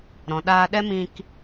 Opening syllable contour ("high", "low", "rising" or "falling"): low